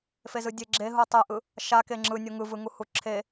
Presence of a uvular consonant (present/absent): absent